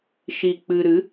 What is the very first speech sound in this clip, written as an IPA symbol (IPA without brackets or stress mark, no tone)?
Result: ʃ